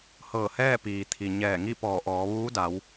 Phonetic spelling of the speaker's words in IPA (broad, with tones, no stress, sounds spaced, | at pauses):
h ɤː˧˩ h ɛː˥˨ p iː˩ t̪ʰ i˩ ɲ ɛː˧˩ ŋ i˥˨ p ɔː˧˩ ʔ ɔː˩˧ ʋ uː˧˥ d a˩˧ w